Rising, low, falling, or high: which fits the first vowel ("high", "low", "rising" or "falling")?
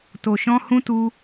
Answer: low